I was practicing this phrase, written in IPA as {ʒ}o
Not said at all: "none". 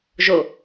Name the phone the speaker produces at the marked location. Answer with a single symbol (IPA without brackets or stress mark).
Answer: ʒ